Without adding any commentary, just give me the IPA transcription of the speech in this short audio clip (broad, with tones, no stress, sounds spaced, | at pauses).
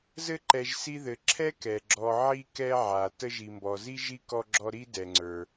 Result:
z ɘ˦ ǃ ɛ˨ ʒ s i˦ ð ɘ˨ ǁʰ ɛ˥ k ɛ˩ ɡ͡ǁ ɔ˨ ʕ i˦ k ɛ˦ ʕ a˩ t ə˦ ʒ i˨ m b ɔ˨ z i˥ ʒ i˥ k ɔ˦ ɡ͡ǁ ɔ˦ ɾ i˥ d ɛ˨ ŋ͡ǀ ə˞˨